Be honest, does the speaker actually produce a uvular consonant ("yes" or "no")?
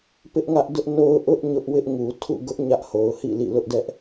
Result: no